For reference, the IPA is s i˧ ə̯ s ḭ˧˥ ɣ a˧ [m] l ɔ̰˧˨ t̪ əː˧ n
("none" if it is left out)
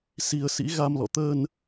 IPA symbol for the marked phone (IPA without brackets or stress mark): m